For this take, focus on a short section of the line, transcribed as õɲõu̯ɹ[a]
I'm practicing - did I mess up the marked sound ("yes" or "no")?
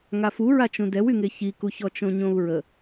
yes